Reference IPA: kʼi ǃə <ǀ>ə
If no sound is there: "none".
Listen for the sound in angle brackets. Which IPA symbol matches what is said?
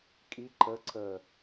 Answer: ǀ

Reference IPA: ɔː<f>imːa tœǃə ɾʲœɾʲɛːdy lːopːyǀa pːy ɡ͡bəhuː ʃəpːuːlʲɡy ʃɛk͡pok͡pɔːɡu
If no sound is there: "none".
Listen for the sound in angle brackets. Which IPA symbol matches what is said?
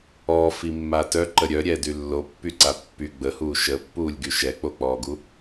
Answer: f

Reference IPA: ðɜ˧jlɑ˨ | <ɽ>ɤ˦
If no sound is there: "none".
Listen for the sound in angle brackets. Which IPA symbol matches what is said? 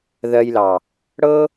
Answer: ɽ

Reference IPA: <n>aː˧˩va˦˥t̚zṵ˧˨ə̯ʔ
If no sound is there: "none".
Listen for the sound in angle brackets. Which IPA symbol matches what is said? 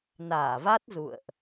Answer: n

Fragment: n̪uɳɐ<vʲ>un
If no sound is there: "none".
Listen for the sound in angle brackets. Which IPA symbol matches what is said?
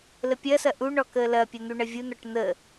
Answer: vʲ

